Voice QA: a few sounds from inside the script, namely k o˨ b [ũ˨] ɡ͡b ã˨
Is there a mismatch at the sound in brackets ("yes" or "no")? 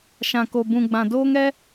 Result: no